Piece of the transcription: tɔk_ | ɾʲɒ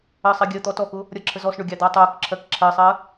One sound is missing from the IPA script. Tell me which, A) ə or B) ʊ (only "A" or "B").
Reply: B